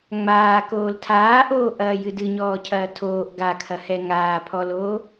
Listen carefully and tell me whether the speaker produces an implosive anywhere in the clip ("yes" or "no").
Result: no